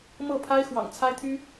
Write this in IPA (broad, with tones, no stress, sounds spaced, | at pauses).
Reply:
m ɤ˥˩ pʰ a˥ ɪ̯ x w ɑ̰˨˩ ŋ t͡sʰ a˥ ɪ̯ t̪ʰ y˥